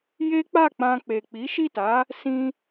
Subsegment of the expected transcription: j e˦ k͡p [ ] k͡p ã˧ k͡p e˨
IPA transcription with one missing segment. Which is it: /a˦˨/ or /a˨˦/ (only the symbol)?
a˦˨